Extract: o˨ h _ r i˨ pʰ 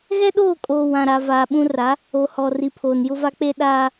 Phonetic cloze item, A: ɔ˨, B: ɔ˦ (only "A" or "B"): A